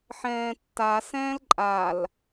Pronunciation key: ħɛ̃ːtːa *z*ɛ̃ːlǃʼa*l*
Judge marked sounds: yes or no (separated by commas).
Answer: no, yes